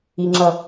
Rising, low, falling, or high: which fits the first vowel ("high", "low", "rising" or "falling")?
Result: low